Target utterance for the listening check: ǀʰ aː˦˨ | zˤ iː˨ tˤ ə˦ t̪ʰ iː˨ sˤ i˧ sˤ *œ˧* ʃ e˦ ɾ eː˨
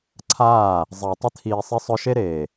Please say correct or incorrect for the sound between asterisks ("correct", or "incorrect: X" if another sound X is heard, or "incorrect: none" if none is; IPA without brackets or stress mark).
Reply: correct